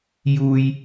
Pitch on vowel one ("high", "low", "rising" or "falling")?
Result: low